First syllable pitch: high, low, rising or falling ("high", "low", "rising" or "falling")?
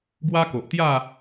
high